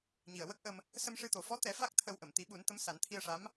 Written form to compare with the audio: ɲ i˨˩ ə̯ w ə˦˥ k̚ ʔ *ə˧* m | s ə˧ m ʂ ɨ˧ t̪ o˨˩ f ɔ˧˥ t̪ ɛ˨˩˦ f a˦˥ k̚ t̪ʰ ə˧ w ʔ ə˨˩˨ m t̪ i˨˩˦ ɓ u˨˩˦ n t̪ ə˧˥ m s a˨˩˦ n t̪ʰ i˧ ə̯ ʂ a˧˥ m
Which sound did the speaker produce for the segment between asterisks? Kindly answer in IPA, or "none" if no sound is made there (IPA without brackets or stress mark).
ə˧